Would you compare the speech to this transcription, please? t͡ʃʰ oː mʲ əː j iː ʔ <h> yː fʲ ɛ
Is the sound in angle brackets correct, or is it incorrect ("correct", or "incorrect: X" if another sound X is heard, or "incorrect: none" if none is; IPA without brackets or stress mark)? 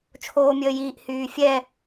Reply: correct